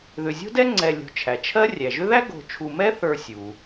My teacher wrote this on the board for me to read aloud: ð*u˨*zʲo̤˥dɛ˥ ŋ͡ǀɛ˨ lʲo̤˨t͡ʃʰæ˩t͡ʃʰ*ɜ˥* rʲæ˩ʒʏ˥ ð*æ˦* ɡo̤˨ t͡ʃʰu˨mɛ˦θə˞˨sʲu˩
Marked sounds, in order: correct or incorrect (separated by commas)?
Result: incorrect, correct, incorrect